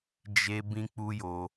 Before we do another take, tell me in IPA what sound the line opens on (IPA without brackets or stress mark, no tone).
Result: d͡ʒ